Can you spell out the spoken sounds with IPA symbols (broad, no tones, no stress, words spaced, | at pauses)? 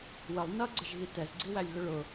wəlˠ nʌɡ͡ǀəʒɣi tɛzɡ͡ǀiwælʲɣʊ ɭʊ